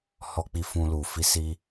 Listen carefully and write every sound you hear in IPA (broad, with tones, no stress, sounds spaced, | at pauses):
h ɔ˧ k͡p i˧ f ũ˧ l u˨ f i˧ s i˧